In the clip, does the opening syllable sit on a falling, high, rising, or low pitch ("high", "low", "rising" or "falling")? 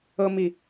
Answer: high